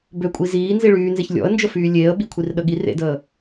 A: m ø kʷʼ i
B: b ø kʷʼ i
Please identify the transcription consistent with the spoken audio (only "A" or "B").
B